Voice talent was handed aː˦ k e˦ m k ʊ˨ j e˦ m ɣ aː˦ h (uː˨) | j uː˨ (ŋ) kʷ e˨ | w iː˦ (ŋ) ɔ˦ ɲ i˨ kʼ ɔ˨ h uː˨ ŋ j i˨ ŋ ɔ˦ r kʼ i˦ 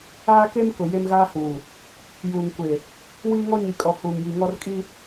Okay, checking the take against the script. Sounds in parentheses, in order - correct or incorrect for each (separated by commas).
correct, correct, correct